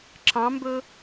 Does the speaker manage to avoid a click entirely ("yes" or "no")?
no